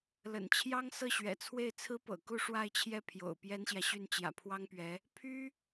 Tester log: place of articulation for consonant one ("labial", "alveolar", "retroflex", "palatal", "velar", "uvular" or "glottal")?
alveolar